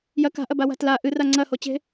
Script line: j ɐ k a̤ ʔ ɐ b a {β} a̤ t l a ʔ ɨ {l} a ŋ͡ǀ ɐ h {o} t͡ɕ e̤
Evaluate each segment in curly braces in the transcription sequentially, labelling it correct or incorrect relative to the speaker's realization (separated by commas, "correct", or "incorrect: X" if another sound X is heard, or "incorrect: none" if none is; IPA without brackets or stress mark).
incorrect: w, incorrect: r, correct